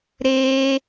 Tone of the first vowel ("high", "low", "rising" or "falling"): high